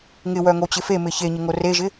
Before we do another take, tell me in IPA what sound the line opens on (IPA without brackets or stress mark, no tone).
ŋ